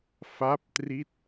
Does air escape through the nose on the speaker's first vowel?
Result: no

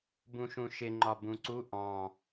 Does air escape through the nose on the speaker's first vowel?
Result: yes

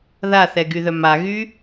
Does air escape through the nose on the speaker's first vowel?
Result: no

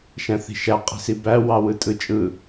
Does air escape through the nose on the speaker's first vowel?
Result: yes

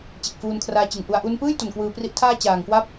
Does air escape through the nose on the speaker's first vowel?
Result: no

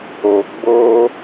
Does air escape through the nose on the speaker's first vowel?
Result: no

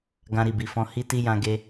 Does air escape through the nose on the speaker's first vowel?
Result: yes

